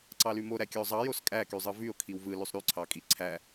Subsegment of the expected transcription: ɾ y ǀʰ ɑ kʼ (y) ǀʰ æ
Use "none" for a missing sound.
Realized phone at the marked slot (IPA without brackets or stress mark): i